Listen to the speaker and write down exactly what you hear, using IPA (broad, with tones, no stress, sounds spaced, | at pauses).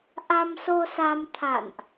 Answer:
ʔ a˧ m s o˧ s a˧ m t̪ʰ a̰˧˨ n ʔ